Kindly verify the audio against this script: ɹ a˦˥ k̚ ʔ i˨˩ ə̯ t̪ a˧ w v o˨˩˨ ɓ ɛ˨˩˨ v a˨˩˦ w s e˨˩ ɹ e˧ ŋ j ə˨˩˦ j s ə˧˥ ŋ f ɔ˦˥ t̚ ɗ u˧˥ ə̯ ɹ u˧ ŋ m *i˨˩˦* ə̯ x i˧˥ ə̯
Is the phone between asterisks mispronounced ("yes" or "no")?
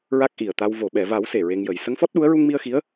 yes